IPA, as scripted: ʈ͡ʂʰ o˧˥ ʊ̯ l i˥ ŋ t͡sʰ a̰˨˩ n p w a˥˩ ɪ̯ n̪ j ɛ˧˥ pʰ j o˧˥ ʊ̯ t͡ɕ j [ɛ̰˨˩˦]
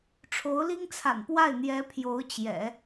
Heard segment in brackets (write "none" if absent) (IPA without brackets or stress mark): ɛ̰˨˩˦